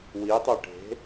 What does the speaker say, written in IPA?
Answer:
w i tˤ ø ʈ e̤

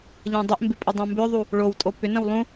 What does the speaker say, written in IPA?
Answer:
ʎ ɛ̃ dˤ ɪ ʔ m b ɪ pʼ ə dˤ õ m b ʏ ðˤ u | ɭ o w tʼ o p ʏ n ə̃ w lˠ ũ

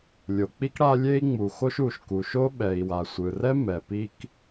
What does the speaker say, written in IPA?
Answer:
lʲ o˩ k͡p i˥ k ɽ a˥ lʲ e˥ i̯ ŋ͡m u˩ x o˥ ʃ u˩ ʃ k u˩ ʃ o˥ ɓ ɛ˩ i̯ w a˩ sʷ ɯ˩ r ɛ˥ m ɛ˩ p i˥ k

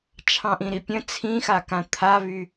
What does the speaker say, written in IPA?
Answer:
t͡ʃʰ ɑ̃ ʔ ĩ ɾ i pʲ ə̃ t͡sʰ ĩ x a k ã t̪ʰ a β y

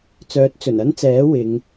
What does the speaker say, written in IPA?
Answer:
t͡s œː˨˥ t̚ t͡s ɵ˨˩ n ɐ˥ n t͡s ɛː˨˥ w ɪ˨˧ ŋ

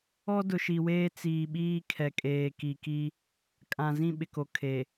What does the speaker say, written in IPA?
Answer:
ɔ˦ d ʊ˨ ʃ i˨ w eː˦ t͡s iː˨ ɓ iː˦ kʰ ɛ˨ kʼ eː˨ k i˨ k i˦ | kʼ ã˨ z ĩ˦˨ ɓ ɪ˨ k o˨ kʰ e˨

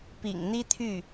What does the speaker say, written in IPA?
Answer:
p ḭ˨˩ ŋ n̪ i˥ t̪ʰ y˥˩

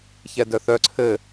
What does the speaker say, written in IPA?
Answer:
ç ɛ d œ θ œ ǀʰ ɘ

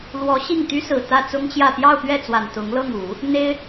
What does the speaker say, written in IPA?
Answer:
l w ɔ˧˥ ɕ i˥˩ ŋ t̪ y˥ s ɹ̩˨˩ t̪ ä˥˩ t͡s ʊ˥ ŋ t͡ɕ j ä˥˧ p j ɑ˥˧ ʊ̯ p ɥ ɛ˥˩ t͡s w a˨˩ n t̪ ʊ˧˥ ŋ l ɤ˥˩ ŋ u˨˩˦ | n̪ e˥ ɪ̯

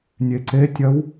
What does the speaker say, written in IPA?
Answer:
nʲ e ǀ e tʲ ɐ w

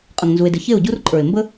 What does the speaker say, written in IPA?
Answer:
qʼ ə˦ ŋ n z u˦ e̯ d ɪ˦ ç e˦˨ o̯ ɟ u˦ r ǃʼ ə˞˨ e̯ m b ə˦

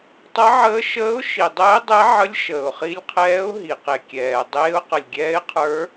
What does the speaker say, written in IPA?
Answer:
tˤ ʌ˧˥ ʕ əː˧˥ ʃ əː˧˥ ʊ̯ ʃ i˩ dˤ ɘː˧˥ ɪ̯ dˤ ɛ˧˥ ʕ ə˧˥ lʲ ʃ əː˩ ʊ̯ χ i˧˥ lʲ qʰ ɛː˧˥ ʊ̯ ɦ i˩ q e˩ kʲ ɛː˩ dˤ eː˧˥ ʊ̯ q ə˩ lʲ ɡʲ ɛː˧˥ ɪ̯ qʰ ə˞˧˥

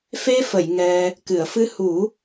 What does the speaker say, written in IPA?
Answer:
f e˧ f ə˨˩˨ j ŋ ɛ˧ | k ɨ˨˩˨ ə̯ f ɨ˧ h u˨˩˦

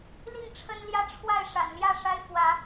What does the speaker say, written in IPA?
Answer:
l i˥˨ ŋ ʈ͡ʂʰ ə˦ n l j ä˦ ʈ͡ʂʰ w a˥˨ ɪ̯ ʂ a̰˨˩ n l j ä˥˨ ʂ a˦ ɪ̯ f w ä˨˦

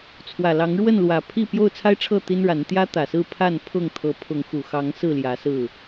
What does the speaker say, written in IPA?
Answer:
t͡sʰ w ä˨˩ l ɑ˨˦ ŋ ɻ w ə˥˨ n l w ä˨˩ pʰ i˥˨ p j o˥˨ ʊ̯ t͡sʰ a˦ ɪ̯ ʈ͡ʂʰ ɤ˥˨ t̪ i˦ n ɻ a˨˦ n t̪ j ä˦ t̪ ä˨˩ s ɹ̩˥˨ pʰ a˥˨ n pʰ ʊ˥˨ ŋ t̪ʰ ɤ˨˦ pʰ ʊ˨˦ ŋ x u˨˩ x ɑ˨˦ ŋ s ɹ̩˥˨ l j ä˨˦ s ɹ̩˥˨

